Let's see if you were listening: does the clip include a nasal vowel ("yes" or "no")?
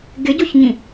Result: yes